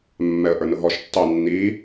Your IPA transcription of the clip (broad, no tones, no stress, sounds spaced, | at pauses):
mː ɛ ə̯ ʔ ə˞ n ʊ ɦ ɔ ʃ tː ɑ nː i